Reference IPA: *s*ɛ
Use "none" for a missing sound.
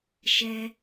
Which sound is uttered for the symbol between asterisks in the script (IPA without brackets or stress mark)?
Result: ʃ